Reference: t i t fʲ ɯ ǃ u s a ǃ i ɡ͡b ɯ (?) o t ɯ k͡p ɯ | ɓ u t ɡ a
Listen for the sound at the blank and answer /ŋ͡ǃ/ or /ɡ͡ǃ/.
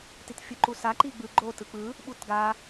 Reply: ɡ͡ǃ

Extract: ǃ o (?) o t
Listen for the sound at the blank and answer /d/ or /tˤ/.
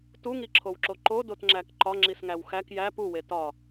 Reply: d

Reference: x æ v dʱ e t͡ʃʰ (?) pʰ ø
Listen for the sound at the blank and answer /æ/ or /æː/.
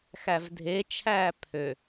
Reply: æː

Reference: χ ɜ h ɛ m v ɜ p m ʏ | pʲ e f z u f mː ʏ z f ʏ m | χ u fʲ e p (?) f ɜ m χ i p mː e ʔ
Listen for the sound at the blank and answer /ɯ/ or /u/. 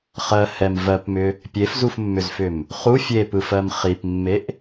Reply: ɯ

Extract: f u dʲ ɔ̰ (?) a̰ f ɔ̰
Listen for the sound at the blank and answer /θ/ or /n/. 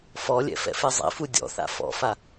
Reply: θ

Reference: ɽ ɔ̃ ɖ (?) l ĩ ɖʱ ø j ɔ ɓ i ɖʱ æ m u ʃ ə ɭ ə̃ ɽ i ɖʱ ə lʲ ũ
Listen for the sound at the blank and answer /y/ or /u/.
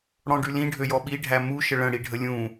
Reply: y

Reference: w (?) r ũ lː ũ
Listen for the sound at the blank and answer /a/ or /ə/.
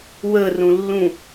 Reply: ə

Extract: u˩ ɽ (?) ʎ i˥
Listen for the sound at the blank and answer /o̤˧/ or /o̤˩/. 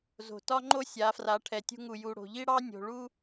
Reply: o̤˩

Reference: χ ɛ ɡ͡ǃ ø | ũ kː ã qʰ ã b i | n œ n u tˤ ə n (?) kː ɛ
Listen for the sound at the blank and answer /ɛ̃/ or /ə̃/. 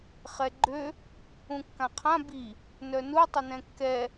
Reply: ɛ̃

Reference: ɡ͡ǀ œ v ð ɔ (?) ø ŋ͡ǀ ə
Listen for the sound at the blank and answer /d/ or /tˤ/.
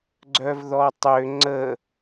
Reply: tˤ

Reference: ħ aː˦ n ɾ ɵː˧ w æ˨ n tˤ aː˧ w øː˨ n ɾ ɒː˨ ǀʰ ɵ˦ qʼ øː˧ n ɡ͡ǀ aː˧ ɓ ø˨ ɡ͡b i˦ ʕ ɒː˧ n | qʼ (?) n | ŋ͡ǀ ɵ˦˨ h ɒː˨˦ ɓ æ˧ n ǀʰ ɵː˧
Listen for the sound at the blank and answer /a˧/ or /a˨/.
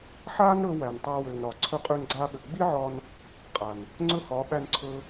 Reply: a˨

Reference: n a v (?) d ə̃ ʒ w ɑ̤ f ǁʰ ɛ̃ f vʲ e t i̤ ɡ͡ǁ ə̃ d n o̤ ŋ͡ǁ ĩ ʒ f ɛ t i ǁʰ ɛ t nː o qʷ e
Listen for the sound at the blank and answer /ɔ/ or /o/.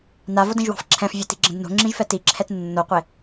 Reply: o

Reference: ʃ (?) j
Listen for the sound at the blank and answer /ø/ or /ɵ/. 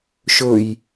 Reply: ɵ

